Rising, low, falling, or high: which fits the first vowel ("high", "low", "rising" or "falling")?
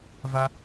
high